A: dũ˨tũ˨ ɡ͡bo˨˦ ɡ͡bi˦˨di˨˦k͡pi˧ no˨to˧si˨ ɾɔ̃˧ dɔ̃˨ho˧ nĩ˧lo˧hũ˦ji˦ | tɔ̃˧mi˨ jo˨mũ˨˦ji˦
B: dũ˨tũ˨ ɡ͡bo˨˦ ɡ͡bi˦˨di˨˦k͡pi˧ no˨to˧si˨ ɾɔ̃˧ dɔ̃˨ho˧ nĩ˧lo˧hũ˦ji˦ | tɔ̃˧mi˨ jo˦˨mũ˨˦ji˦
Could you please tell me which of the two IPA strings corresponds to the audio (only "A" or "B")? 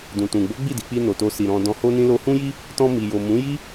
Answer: A